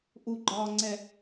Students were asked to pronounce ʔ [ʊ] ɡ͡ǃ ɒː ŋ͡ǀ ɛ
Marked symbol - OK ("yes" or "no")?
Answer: no